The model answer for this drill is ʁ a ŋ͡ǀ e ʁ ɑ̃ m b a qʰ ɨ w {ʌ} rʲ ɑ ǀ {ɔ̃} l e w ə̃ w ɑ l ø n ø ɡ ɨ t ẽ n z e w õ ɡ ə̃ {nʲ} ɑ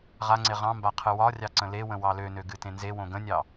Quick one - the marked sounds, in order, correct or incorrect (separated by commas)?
incorrect, incorrect, correct